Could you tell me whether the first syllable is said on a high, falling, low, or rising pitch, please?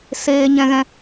high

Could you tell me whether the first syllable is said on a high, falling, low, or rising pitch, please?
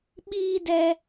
high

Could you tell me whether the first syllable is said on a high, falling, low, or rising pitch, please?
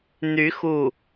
rising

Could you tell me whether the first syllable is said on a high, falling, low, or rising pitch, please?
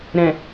low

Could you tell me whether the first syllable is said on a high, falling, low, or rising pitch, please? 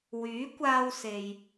rising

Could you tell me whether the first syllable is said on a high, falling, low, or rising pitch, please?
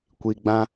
low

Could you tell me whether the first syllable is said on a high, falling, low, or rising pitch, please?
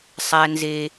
high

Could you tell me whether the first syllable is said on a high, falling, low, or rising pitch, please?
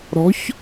rising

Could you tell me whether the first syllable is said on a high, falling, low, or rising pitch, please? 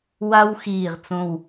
high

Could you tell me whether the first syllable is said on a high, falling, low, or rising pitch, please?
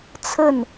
falling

